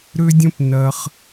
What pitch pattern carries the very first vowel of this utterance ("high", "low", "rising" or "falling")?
high